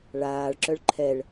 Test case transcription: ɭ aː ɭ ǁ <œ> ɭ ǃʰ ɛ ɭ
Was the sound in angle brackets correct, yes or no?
yes